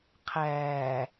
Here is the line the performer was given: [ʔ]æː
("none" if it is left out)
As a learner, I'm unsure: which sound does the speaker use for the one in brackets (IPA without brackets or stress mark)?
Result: qʰ